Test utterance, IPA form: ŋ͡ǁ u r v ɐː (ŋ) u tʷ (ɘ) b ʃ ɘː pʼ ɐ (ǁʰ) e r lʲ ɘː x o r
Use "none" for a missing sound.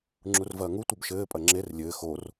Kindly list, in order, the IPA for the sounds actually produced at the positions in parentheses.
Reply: ŋ, ɘ, ŋ͡ǁ

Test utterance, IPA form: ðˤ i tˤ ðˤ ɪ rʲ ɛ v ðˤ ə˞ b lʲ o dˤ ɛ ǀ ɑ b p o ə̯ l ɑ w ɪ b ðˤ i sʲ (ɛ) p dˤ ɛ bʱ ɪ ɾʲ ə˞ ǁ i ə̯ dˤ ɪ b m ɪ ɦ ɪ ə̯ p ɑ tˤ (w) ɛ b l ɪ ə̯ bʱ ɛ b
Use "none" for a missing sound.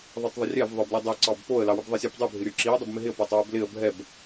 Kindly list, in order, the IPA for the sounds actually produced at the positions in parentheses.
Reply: ɛ, w

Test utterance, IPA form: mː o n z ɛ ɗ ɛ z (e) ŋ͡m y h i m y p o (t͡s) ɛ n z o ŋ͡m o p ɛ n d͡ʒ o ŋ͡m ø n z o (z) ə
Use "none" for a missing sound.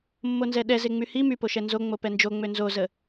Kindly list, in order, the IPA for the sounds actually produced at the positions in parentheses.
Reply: e, ʃ, z

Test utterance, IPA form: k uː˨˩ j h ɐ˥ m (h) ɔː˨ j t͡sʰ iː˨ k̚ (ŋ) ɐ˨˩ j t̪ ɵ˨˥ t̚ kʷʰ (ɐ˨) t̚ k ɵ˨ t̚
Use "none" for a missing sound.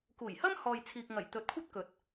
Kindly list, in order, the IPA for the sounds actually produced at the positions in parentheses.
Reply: h, ŋ, ɐ˥

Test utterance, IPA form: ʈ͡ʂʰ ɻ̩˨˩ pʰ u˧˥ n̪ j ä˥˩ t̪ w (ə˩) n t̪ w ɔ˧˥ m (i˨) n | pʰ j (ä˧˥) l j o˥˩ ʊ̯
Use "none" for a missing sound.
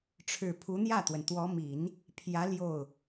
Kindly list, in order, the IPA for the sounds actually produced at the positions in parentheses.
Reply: ə˩, i˨˩˦, ä˧˥

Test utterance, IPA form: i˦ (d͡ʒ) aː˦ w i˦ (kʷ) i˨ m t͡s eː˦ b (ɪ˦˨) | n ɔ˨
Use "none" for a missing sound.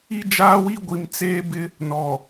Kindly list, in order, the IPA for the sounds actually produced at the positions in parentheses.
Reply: d͡ʒ, ɡʷ, ɪ˦

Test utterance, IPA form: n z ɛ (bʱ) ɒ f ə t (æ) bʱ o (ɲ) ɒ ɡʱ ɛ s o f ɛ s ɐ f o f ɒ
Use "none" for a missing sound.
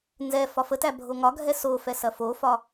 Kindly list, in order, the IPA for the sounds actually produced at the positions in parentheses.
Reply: f, æ, ŋ

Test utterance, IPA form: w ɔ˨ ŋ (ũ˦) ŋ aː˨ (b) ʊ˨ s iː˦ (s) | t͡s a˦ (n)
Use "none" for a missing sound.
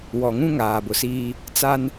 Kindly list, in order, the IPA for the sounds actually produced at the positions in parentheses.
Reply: ũ˦, b, none, n

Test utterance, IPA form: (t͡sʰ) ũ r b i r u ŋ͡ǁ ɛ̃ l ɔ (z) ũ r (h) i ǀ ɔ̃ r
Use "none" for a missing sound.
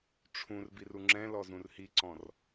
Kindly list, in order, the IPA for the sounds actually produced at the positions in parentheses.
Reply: ʈ͡ʂʰ, z, h

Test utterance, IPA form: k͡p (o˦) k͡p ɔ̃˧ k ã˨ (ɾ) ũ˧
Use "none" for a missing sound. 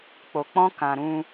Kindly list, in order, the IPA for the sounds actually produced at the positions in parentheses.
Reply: o˨, ɾ

